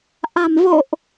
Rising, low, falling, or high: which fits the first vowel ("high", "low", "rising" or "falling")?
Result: low